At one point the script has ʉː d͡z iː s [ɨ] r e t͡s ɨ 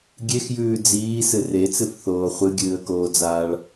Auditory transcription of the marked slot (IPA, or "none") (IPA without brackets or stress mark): ɨ